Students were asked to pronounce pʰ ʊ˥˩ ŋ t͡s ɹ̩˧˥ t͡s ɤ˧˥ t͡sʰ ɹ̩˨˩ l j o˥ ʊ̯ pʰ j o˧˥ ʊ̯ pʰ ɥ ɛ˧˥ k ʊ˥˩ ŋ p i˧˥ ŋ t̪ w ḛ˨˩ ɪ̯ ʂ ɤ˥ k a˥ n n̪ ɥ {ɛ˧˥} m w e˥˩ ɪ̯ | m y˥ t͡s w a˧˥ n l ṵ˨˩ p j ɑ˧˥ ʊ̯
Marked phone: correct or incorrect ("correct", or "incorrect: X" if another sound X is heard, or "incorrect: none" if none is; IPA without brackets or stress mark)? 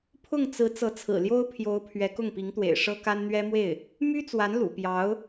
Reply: incorrect: ɛ˥